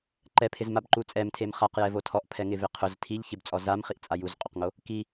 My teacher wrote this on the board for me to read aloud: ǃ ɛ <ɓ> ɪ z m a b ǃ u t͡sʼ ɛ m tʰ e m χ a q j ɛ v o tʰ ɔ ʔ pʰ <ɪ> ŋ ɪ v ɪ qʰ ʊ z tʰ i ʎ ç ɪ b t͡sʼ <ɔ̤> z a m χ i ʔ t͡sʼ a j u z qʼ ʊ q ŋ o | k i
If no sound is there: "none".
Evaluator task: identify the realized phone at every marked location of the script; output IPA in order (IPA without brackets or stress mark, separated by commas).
pʰ, ɛ, ɔ